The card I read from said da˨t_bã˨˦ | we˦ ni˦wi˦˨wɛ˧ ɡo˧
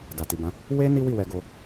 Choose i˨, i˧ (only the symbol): i˨